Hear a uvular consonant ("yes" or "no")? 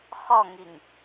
yes